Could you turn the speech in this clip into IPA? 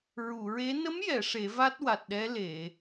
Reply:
ɹ u˨˩˨ ɹ e˧˥ n ə˧˥ m j ɛ˨˩˨ ʂ e˨˩˦ v a˦˥ t̚ w a˨˩ t̚ ɗ ɛ˧˥ l e˨˩˨

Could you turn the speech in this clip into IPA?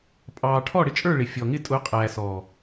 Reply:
pʼ ɑː˨ ʈʰ ɔ˦˨ ɽ ɪ˦ t͡ʃʼ ə˞˦˨ ɭ ɪ˨ fʲ ɔ˨ ŋ ɪ˦˨ tʼ ʊ˨˦ qʼ æː˨ s ɔ˨

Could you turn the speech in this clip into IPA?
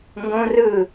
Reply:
ŋ ɡ õ r ɯ

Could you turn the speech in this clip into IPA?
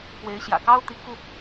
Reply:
p w e˧˥ ɪ̯ ɕ j ä̰˨˩ k ɑ˥ ʊ̯ t̪ i˧˥ k u˧

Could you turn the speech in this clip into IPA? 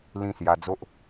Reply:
l ĩ˥˧ s j a˧ d͡z o˦ ʔ

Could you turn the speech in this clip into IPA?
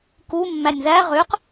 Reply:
k u mː æ nʲ ð æ ʁ ø q

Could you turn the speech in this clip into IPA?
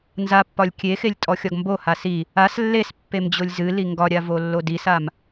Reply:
n z a pː ɒ lʲ kʲ e x e lʲ tʼ ɔ xʲ ɒ ɡ m b o h a s i | a s lː e s pː e m d͡ʑ o lʲ z ɨ l i ŋ ɡ ɒ ɾʲ a v o lː o d i s a m

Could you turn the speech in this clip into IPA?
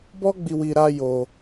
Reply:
b ɔ˦ ɡ͡b i˧ w i˧ ɾ a˦ j o˧

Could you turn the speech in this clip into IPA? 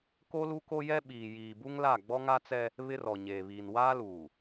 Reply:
k o˦ l u˦ k o˦ j ɛ˦ ɓ iː˨ j iː˨ b u˦ ŋ l a˦˨ ɡ͡b ɔ˦ ŋ a˦ t͡s ɛ˦ | β ɪ˦ r ɔ˨ ɲ eː˨ β iː˨ n w aː˦ l uː˨

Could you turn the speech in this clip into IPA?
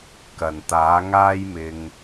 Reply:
k ɐ˨˩ n t̪ aː˨˥ ŋ aː˥ j m ɪ˨ ŋ

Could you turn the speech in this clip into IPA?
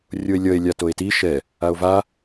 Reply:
rʲ o e̯ lʲ ʌ e̯ lʲ a t o e̯ t i ʃ ɛ | a o̯ v a

